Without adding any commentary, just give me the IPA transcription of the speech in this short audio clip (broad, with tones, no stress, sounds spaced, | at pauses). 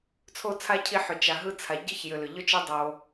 t͡sʰ o˥ t͡sʰ a˥ cʰ i˦ ħ ʏ˨ t͡ʃ a˨ ɦ ɯ˥ t͡sʰ a˨ ɟ ɯ˥ ç j ʏ˨ l ʏ˩ ʎ ʏ˥ t͡ʃ i˦ dˤ o˨